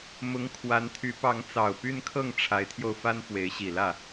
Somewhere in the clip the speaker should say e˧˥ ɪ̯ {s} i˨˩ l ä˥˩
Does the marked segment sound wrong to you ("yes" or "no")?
yes